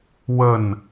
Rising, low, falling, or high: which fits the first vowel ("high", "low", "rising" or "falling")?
falling